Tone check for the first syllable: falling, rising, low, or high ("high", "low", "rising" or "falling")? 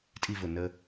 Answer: falling